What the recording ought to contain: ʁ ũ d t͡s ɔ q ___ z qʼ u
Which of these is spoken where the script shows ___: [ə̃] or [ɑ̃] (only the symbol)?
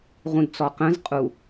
ə̃